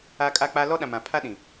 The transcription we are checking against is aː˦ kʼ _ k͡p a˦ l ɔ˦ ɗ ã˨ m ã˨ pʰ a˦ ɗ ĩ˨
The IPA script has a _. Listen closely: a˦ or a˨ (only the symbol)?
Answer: a˦